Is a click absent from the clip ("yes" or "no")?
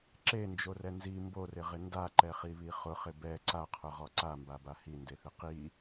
no